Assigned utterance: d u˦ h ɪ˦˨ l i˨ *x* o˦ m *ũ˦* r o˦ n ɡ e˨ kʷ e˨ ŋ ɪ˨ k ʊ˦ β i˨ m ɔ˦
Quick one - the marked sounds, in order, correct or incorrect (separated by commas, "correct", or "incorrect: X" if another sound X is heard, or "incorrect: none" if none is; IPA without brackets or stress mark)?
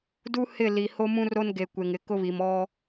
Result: incorrect: h, correct